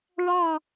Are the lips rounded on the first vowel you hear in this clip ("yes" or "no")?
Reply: no